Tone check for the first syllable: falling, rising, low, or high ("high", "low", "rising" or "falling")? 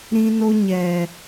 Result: high